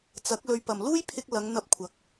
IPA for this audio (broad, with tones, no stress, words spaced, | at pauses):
t͡sɐ˨˥k̚ lɵ˨˧ɥpɐ˨˩m luː˥jpʰɪ˧k̚ lɐ˨˧ŋn̪ɐ˧p̚kʷʰɐ˨˥k̚